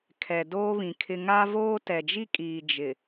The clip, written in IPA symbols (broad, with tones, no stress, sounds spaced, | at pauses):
kʰ ɛ˨ d oː˦ β ĩ˨ kʰ ɪ˦ ŋ a˦ v oː˦ t ɛ˨ d͡ʒ i˦ kʼ iː˨ d͡ʒ ɪ˨